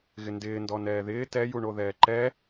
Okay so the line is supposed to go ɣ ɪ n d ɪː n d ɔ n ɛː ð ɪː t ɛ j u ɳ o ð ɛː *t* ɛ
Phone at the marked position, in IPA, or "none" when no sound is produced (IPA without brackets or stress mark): ǃ